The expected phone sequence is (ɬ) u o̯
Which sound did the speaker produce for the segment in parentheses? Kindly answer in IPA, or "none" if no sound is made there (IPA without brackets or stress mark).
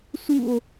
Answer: s